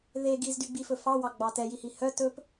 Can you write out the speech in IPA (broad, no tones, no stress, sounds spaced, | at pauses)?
ð e ɡ i z d y ɡ͡b i f ɵ f ɑ w ɑ ɡ͡b ɑ t ɛ j i h i h œ t ɵ p